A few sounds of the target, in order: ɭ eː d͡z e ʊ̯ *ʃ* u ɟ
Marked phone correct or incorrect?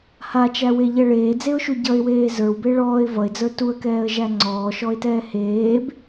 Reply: correct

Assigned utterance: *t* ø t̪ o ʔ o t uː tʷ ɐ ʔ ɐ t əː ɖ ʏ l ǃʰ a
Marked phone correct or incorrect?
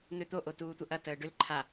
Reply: incorrect: n̪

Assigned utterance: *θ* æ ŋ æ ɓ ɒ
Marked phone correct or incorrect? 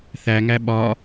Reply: correct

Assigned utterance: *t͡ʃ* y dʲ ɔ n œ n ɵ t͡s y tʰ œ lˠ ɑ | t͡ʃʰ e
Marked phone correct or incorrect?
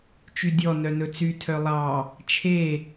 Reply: correct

